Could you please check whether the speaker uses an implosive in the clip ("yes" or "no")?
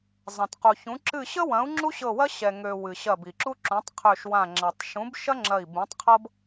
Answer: no